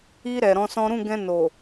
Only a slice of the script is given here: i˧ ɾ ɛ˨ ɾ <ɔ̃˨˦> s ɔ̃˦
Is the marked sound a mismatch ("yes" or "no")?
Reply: no